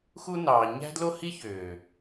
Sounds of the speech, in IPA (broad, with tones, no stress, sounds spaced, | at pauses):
x u˦ n ɑː˨ ɲ æ̤˦ d l o˦ h i˦ ç øː˨